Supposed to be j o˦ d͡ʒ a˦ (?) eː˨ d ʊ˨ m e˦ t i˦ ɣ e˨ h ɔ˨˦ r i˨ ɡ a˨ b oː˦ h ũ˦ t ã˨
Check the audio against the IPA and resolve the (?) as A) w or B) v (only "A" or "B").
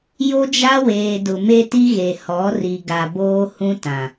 A